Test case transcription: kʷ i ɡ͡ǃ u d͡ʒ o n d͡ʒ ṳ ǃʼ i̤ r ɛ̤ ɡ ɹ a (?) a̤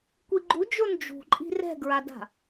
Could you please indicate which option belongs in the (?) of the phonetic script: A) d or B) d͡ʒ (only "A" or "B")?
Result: A